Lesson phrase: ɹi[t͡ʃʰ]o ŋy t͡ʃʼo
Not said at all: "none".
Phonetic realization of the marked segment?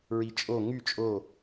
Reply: t͡ʃʼ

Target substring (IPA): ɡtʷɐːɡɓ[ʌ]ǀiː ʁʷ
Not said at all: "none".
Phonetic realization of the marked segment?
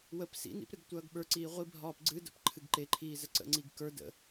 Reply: ə˞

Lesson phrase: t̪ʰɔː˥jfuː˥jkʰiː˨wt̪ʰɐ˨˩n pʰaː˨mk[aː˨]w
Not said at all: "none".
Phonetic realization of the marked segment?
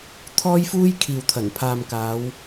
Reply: aː˨˧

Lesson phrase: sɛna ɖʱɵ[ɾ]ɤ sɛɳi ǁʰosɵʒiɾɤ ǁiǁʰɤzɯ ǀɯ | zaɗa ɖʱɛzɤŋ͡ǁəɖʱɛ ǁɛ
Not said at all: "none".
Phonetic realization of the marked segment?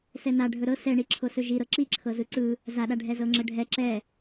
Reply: ɾ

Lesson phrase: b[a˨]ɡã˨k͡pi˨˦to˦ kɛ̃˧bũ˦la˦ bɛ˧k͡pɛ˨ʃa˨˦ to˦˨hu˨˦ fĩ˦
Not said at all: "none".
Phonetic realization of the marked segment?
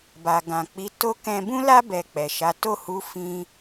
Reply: a˨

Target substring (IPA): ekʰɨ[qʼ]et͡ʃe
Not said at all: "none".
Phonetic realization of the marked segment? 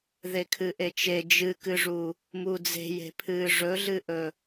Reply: ʔ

